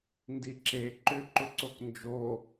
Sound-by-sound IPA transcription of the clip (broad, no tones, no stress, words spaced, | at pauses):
ndiǁe ǃʏ ǃʏǀoknd͡ʒo